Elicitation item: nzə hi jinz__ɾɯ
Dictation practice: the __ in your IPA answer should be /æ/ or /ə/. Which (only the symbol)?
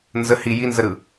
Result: ə